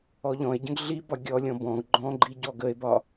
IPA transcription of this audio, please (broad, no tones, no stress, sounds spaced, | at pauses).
ɔ ʎ ɔ̃ e̯ ɟ ə̃ ɡ ɮ i b ɒ ɡʲ ɔ lʲ ɔ̃ b ɔ̃ ɡ ɡ͡ǃ ɔ̃ ɡ͡ǃ i ɟ ɔ ɡ ə e̯ b ɒ